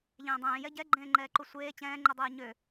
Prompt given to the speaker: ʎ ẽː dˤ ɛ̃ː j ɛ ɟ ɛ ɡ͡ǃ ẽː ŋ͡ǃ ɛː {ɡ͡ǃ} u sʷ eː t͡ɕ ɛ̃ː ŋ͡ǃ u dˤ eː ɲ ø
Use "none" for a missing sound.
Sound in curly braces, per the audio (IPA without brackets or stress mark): ǃ